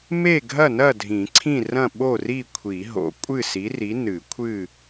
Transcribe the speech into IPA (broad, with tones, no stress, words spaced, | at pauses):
me˥˨ ɡʱɐ˥˨nɐ˥˨dʱĩ˨˩˦ ǀʰĩ˥˨rɐ̃˥˨ ɓo˥˨ri˥˨kʷʰi˨˩˦ ɦo̰˨˩˦ kʷʼɨ˥˨si˨˥ri˨˥ nɨ˨˩˦kʷʰɨ˥˨